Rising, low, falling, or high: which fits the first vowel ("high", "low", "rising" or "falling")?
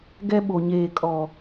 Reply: high